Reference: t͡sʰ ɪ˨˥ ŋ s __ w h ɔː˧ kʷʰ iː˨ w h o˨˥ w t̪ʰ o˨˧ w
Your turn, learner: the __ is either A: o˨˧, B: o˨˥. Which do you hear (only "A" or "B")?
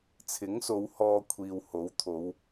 A